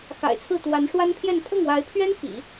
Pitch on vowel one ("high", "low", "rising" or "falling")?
low